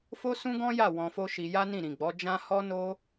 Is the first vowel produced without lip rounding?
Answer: no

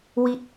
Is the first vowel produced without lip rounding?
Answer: yes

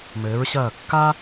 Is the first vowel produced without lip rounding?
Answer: yes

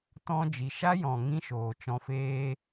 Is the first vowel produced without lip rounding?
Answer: no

